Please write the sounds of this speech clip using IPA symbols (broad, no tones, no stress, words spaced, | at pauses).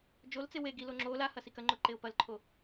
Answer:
d͡ʒolt͡se we ɡilo ŋ͡ǁo lahɐ sikɐŋ͡ǃo ǃeʊ̯pɐlǃʰo